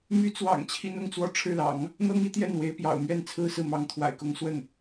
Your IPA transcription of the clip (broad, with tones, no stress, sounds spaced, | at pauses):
m y˧˥ t͡s w ɑ̰˨˩ ŋ t͡ɕʰ i˥ n ʊ˥ ŋ t͡s w ɔ˥˧ ʈ͡ʂʰ ɻ̩˥˩ l ɑ̰˨˩˦ ŋ | n̪ ɤ˥ ŋ i˧˥ t̪ j ɛ˥˩ n w e˧˥ ɪ̯ p j ɑ̰˨˩ ʊ̯ m ɥ ɛ˥˩ n t͡sʰ ɹ̩˥ s ɹ̩˥˩ m ɑ˧˥ ŋ t̪ʰ w a̰˨˩ ɪ̯ k ʊ˥ ŋ s w ə˥˩ n